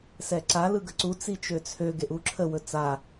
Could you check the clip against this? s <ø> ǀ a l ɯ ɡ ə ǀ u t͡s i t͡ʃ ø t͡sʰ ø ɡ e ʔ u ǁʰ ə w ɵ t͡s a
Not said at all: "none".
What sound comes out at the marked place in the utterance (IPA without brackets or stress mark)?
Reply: ɛ